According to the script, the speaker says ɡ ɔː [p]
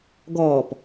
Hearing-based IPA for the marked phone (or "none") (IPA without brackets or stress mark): p